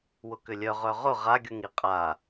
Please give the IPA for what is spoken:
w ʊ k ʏ lʲ œ ʁ œ ʁ ʊ ʁ a ɡʲ u ŋ i qʼ a

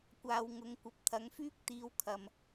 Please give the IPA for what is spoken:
kʷ aː˧ w ŋ ʊ˨˧ ŋ kʷ ɐ˨ p̚ t̪ʰ ɐ˨˧ ŋ f yː˥ k̚ t̪ iː˧ w kʰ ɐ˨ m

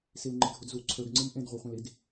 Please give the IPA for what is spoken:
s i l ŋ͡ǃ ɨ dʱ u d z u ǀʰ ə˞ ɡ ŋ͡ǀ ɨ m ʔ ẽ d ʁʷ e χʷ ẽ l i d

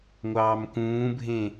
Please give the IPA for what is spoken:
ŋʷ ɑː m k ũː bʱ ẽ

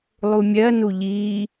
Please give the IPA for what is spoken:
lˠ u mʲ ɜ n u ʎ iː

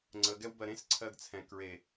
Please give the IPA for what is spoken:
ŋ͡ǀ ə ɡ ɛ w b ɜ ɾ ẽ s ǀʰ ɜ ɡ t͡sʰ ɛ̃ k ɹ e

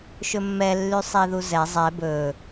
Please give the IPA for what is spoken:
ʃ ɵ mː ɛ lː y sˤ i ð u z ɛ zˤ ɛ b ɵ

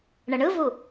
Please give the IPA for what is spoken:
ɳ ə ɳ ɯ v u

